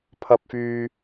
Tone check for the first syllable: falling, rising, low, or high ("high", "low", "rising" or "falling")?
low